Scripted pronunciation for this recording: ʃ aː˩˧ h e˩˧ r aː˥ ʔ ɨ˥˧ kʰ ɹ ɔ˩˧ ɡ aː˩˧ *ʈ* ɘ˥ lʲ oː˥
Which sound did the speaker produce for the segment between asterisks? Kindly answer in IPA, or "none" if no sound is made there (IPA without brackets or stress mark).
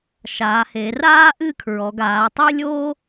tˤ